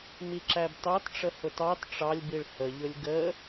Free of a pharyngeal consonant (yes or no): yes